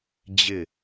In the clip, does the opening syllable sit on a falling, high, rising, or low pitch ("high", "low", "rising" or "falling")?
falling